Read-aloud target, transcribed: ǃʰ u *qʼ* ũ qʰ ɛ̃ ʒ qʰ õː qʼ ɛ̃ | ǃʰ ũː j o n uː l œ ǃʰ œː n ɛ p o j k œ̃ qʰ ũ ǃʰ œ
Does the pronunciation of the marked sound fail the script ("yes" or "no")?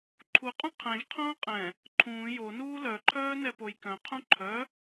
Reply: no